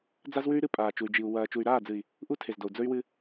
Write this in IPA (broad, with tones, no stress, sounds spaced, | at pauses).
d͡z a˦ z w ʉ˦ y̯ ɾ ɨ˦ pʼ aː˨ t͡ʃ u˨ y̯ d͡ʒ i˨ u̯ w ɐː˨ t͡ʃ u˨ y̯ ɾ aː˦˨ d͡z ɨ˨ i̯ | ʔ u˦ tʰ e˨ z d o˨ u̯ d͡z ɵ˦ y̯ w ɨ˦